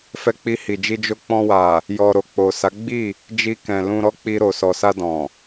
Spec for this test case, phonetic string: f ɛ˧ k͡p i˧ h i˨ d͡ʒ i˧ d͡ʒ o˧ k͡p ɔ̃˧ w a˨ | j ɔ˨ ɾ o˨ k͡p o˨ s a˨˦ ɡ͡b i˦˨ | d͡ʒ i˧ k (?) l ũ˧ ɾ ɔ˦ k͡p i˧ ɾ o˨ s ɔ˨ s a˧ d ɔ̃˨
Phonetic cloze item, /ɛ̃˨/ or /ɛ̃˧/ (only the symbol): ɛ̃˨